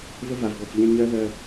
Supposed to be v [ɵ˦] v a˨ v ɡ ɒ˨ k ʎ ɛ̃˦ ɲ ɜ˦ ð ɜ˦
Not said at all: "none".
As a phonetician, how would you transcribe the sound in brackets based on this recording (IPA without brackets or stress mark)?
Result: ə˦